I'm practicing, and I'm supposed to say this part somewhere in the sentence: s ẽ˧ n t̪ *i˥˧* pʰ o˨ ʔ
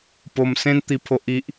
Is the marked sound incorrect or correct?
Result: incorrect